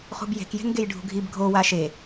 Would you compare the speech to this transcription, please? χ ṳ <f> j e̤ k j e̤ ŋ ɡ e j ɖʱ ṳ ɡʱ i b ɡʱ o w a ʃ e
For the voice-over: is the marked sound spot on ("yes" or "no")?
no